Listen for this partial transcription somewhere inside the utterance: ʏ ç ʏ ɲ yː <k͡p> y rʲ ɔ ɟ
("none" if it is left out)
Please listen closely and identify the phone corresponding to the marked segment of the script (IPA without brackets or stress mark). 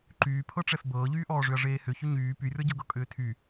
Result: p